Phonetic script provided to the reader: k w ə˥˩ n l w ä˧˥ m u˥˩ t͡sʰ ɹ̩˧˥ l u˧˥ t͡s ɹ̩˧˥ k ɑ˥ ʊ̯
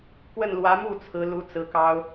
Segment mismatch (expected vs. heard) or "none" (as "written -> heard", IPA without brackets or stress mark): none